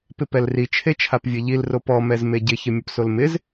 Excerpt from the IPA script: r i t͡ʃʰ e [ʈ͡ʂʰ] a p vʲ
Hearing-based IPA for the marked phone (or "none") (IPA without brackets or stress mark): t͡ʃʰ